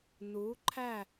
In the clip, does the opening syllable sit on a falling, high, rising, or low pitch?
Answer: rising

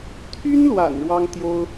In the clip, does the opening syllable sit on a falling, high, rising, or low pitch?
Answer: high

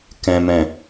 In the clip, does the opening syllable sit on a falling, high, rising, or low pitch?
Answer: low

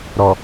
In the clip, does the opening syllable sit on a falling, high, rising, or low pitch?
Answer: low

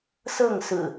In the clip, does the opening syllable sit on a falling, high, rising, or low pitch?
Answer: falling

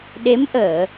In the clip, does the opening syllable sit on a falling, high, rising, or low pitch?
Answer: rising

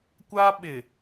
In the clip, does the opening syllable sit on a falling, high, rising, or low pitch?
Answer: high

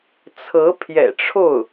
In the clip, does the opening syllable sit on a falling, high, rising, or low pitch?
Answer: rising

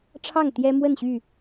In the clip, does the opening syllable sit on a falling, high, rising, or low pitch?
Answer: falling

